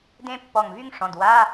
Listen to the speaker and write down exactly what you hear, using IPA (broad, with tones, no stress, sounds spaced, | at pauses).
d ẽ˥ pː ɔ˧˩ ŋ v y˥ ŋ ʂ ɔ̃˩˧˩ d w a˧˥˧